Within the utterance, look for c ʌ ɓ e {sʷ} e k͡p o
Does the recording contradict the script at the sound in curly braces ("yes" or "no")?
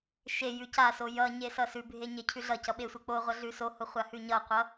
no